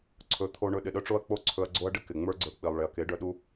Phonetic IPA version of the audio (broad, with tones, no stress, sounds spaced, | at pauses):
ǀʰ ɵ˨˦ t̪ʰ o˧ ɳ ɵ˧ ɗ ɪ˨ ɗ œ˦ ʈ͡ʂ o˦ ɐ̯ k͡p o˦ ǀʰ ɵ˧ ɐ̯ ɡ͡ǀ o˦ ɐ̯ ɖ ɪ˦ k ɪ˨ ŋ͡m ə˞˦ ɡ͡ǀ ə˞˧ k͡p i˨ lˠ ɭ e˨ ɐ̯ k e˨˦ ɖ œ˧ ɗ u˦